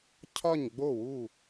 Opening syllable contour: falling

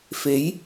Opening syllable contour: rising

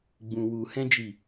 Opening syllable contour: low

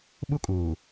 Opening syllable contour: high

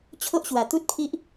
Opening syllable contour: high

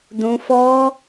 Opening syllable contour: high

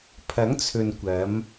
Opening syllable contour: rising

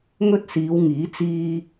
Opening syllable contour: high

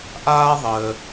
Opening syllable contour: high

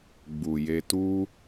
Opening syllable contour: low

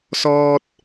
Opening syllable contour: high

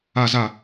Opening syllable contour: low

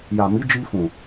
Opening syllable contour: low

